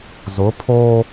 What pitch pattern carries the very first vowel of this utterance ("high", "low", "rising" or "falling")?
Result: rising